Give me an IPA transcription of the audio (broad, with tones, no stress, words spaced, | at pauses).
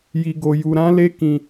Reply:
ji˧ɡo˧ju˧ ɾã˦le˦ kĩ˧